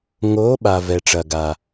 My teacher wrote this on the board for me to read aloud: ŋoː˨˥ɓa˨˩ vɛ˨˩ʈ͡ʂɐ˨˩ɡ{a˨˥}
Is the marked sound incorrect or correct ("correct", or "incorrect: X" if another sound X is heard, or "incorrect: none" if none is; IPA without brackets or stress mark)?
incorrect: a˨˩